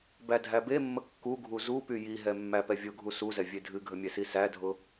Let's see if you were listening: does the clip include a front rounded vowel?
yes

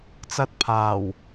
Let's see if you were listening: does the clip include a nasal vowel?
no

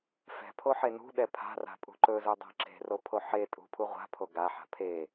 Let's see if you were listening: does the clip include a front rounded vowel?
no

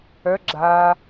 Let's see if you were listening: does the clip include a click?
yes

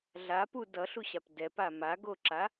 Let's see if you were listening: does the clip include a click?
yes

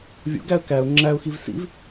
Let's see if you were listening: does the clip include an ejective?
no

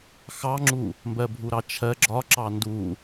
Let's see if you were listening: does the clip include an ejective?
no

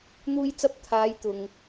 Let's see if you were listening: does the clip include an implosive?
no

